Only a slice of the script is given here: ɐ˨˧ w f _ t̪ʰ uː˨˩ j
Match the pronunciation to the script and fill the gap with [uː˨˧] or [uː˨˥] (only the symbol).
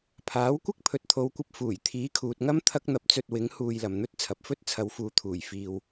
uː˨˧